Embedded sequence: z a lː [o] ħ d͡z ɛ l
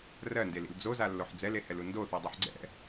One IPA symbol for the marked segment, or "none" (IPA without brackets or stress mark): o